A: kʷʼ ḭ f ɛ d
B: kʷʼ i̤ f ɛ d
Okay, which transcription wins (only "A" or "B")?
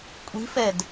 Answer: B